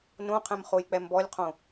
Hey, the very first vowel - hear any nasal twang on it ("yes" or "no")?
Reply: yes